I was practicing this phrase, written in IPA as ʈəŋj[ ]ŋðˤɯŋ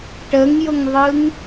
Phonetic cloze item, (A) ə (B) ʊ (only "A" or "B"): B